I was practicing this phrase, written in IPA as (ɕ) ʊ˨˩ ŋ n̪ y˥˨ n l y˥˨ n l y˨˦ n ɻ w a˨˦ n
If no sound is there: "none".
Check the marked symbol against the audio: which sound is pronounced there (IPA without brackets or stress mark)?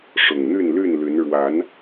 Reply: ʂ